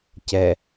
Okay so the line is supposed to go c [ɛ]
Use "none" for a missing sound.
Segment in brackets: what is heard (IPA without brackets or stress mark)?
ɛ